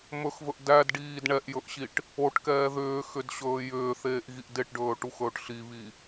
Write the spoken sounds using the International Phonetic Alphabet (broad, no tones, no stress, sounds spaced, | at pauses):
m ɵ x v ɵ ʔ d æ d ɖ iː d ɳ ɛ ʔ j ɵ ʔ ɕ i ʈ | o ʈ k ɛː ð ʏː x ʏ d ɕ ɵː j ʏː θ eː ʔ ɣ i ʔ d e ʈ ɖ ɵː ʈ u x ɵː ʈ ɬ i β i